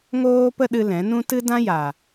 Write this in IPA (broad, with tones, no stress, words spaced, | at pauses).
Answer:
ŋoː˦pə˦ɗɨ˧ lɛ̃˨˦nũ˦ tɨ˦dã˦ja˨